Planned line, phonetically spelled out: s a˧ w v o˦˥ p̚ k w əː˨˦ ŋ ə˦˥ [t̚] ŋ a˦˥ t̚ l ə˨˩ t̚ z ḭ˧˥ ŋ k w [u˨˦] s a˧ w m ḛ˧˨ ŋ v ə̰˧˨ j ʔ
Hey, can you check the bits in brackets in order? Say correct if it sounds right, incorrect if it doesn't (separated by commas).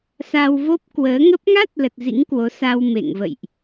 incorrect, incorrect